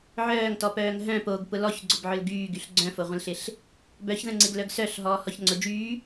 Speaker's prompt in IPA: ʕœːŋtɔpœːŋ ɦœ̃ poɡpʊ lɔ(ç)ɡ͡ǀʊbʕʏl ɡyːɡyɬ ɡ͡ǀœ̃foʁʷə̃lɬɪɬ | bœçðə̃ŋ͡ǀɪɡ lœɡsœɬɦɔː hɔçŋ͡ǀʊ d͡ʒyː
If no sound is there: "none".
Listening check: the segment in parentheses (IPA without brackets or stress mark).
ç